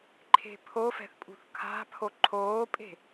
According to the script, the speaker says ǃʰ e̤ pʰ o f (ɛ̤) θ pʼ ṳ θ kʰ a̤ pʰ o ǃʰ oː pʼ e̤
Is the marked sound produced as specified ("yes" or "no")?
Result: yes